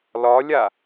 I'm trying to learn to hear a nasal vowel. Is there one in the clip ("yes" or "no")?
no